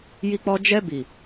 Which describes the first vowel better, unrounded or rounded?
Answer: unrounded